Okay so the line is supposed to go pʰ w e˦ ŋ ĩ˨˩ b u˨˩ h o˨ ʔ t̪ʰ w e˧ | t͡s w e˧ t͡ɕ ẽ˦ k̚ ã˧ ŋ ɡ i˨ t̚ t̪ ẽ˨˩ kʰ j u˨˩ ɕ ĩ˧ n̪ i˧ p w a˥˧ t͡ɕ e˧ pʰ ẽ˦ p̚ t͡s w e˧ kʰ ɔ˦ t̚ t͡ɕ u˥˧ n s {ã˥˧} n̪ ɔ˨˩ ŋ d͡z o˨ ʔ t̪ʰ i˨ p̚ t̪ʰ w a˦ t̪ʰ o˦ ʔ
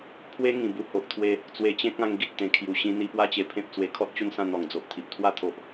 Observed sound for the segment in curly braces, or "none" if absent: ã˥˧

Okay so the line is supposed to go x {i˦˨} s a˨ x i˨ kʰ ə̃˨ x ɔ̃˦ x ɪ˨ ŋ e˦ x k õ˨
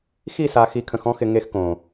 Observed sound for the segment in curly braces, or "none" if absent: i˦˨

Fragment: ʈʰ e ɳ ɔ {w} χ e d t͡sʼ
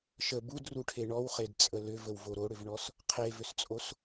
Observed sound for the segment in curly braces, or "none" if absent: w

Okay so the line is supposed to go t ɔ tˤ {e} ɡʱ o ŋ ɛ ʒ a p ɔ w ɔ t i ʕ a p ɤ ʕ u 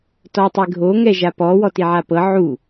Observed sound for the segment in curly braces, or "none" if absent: e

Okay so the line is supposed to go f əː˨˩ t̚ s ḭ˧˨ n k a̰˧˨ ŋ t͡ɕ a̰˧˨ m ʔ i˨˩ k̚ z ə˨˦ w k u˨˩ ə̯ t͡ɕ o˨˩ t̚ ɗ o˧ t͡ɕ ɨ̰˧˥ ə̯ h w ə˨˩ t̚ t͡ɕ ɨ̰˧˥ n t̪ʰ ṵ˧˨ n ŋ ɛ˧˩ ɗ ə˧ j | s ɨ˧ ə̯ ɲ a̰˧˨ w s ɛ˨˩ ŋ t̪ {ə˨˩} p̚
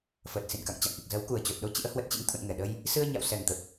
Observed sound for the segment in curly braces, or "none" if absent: ə˨˩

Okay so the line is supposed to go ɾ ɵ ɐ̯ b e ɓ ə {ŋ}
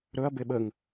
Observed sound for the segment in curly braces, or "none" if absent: ŋ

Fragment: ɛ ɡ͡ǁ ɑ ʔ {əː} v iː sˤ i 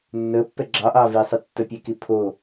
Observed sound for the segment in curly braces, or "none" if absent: ɑː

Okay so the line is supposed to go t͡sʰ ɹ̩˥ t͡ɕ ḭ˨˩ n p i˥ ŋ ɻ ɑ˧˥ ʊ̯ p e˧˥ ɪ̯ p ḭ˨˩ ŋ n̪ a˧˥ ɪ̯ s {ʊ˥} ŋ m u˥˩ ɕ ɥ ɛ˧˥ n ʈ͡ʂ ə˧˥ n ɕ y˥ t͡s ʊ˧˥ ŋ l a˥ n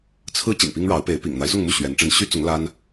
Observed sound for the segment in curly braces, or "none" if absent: ʊ˥˧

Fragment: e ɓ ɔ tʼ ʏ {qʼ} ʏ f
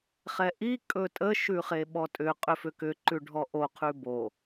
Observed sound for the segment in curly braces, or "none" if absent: qʼ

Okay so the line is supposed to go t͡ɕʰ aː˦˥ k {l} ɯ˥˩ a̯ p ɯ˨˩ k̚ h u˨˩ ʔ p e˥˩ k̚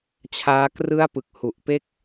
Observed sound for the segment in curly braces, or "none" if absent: r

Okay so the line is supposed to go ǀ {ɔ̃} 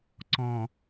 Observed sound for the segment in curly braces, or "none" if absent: ɔ̃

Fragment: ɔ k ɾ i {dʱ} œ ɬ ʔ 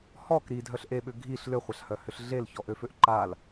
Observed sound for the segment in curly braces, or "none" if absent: dʱ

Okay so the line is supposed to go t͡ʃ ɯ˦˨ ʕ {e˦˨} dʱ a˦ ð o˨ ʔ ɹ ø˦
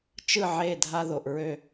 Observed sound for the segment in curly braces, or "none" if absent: e˦˨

